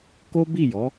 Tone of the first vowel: high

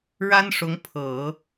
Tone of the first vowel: high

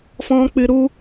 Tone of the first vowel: high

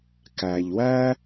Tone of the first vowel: low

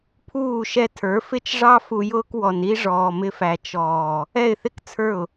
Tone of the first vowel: falling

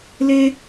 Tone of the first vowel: high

